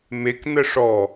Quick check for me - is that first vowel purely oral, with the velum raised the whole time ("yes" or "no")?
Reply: yes